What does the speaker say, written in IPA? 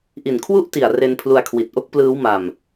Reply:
ʔ i˨˩ n kʰ w u˥˩ ʔ t i˨˩ a̯ r e˧ n pʰ l u˧ a̯ kʰ w i˨˩ t̚ ʔ o˥˩ k̚ p l ɯː˦˥ w m a˧ m

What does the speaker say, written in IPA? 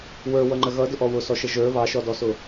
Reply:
w ə˞ w ʌ ŋ͡ǃ ə ɣ ʌ d ʊ ʔ ɔ w ʊ s ɔ ʃ ə ʒ ə˞ β ɑ ʃ ɔ d ɔ s ʊ

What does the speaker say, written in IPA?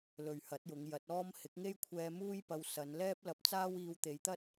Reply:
l ɵ˨ ɥ h ɐ˨˥ t̚ j ʊ˨˧ ŋ j ɐ˨˥ t̚ ɔː˥ m h ɪ˨˥ k̚ ŋ e˥ j kʷʰ ɛː˧ m uː˥ j p ɐ˧ w s ɐ˨˧ n l ɛː˥ p̚ l ɐ˧ p̚ t͡s aː˥ w iː˧ w t̪ e˨˧ j t̪ ɐ˥ t̚

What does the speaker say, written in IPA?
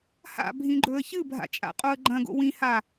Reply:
h a̰ bʱ ĩ ɡ͡ǃ ɵ ə̯ ç ɨ bʱ a̰ t͡ʃʼ a̰ qʼ o ə̯ ɡ͡ǃ ɐ̃ ɡ o̰ w ĩ h a

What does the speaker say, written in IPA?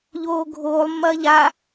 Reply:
ʎ oː ɡʱ oː lˠ mː ɐː ʎ a

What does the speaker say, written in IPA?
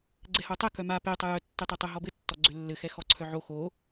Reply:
ɡ͡ǀ ɛ h o tˤ ɛ k œ m a p e tˤ ɛ j œ tː e tˤ e tˤ ɘ ɦ ɔ b ɘ tː ɔ ɡ͡ǀ ø lː ɘ x ɛ x ɔ ǀʰ œ ʕ o x o

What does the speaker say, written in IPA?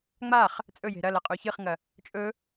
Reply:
ŋ͡m a χ | t͡sʼ ɵ j e̤ ɾ ɐ l ɐ qʼ u ç ɨ χ ŋ ɐ | t͡ʃʼ ɵ

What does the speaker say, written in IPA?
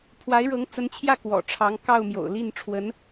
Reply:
pʰ w a˧˥ ɪ̯ ɻ ɤ˧˥ ŋ t͡s ə˧˥ n t͡ɕʰ j ä˥˩ k w ɔ̰˨˩ ʈ͡ʂʰ ɑ˧˥ ŋ k ɑ˥˩ ʊ̯ m j o̰˨˩ ʊ̯ l i˥˩ n ʈ͡ʂʰ w ə˧˥ n

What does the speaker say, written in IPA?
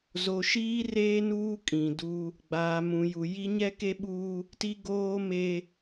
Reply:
z o˨ ʃ iː˦ r eː˦ n uː˦ kʼ ĩ˨ d u˦ | ɡ͡b aː˨ m ũ˨ j u˨ j i˦ ɲ ɛ˦ k e˦ ɓ uː˦ | t i˦ ɡ oː˦ m e˦

